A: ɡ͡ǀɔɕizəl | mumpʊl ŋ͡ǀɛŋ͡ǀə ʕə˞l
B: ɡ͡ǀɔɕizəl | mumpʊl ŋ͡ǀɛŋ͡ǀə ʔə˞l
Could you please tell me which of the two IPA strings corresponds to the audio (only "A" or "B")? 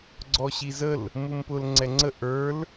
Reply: B